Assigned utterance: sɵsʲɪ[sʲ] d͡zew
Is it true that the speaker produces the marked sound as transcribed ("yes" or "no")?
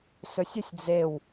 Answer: yes